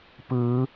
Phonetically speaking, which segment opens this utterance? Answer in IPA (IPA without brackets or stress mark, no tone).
p